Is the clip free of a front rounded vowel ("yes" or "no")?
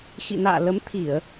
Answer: yes